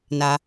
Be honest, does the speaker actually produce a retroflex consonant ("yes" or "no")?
no